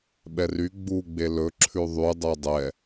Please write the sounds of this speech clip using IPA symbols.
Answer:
ɓ ɛ r y ɡ͡b u ɡ͡b e l ɵ ǁʰ ʉ ðˤ y dˤ o dˤ ɛ

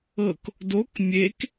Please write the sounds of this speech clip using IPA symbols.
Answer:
ɤ k | d o k mʲ e k

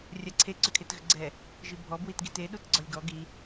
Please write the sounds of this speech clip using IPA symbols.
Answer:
rʲ a ǀʰ e ǀ ʏ kʰ e t ɣ ʏ ɡ͡ǀ ɛ | ʒ i bʱ ɔ b w i t ɡ i t e ɗ u t ɡ͡ǀ ɔ lʲ ɡ ɔ ɡ i

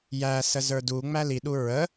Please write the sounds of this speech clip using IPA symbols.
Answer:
j æ s ə z ə˞ d u ŋ͡m æ l i ɗ u ɹ ə

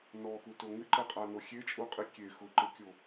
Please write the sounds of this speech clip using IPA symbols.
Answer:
n ɔ x u t o ŋ ɪ ǃ ɛ qʼ a n o xʲ e t͡ʃʼ u qʼ i kʲ e x ʊ ǃ ɪ kʲ o

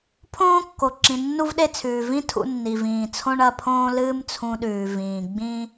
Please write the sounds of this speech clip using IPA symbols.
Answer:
pʰ õː˥ kː o˩ ǁ ĩ˩ nː u˥ v ɗ e˥ t͡sʰ ʉː˩ v ĩ˥ tʰ ṵ˧ nː i˩ v ĩː˩ t͡sʰ õ˥ ɳ ɐ˧ pʰ õː˥ l ɨː˥ m t͡sʰ ũ˧ ɗ ʉː˩ v ĩː˩ ɡ͡b ĩ˥

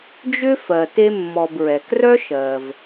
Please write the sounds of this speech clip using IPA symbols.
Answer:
d͡ʒ ʏ˦ f ɜ˩ t e˦ mː ɔ˨ b ɹ ɛ˩ k r œ˦ ʃ ɜ˩ v

